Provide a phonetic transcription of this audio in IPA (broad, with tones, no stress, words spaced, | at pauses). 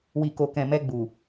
wi˨ko˨kɛ̃˨mɛ˧ ɡ͡bu˨